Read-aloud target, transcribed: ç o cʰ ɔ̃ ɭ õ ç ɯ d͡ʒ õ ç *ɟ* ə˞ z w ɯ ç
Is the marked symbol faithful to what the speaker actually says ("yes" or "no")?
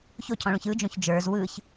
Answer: no